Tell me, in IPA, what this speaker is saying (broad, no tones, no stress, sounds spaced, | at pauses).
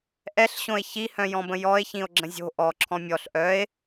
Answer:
ʔ ɛ ɬ ɕ õ e̯ ç i h œ̃ j ɔ̃ b ə̃ j ɔ e̯ ç ĩ o̯ ɡ͡ǁ ə̃ zʲ o̤ ʔ ɔ ǁʰ ɔ̃ mʲ ɔ ɬ ʔ œ e̯